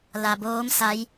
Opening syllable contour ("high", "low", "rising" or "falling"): low